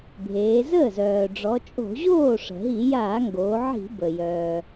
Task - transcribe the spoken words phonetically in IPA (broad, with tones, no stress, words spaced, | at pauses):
bʱeː˩˧zəː˥˩zœː˩ ɖ͡ʐɔ˩˧t͡ʃʼo̤˧˩˧ʑoː˥˩ ʂə̤˩ɦi˧˩˧ jaː˧˩˧ŋɡoː˩˧ʕi̤˧˩˧ bə˩ jœː˩